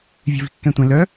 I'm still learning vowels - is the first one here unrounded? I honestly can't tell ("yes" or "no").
yes